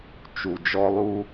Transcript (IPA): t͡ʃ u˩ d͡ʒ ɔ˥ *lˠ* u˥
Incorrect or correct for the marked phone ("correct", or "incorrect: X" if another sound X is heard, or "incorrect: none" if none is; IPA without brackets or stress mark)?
correct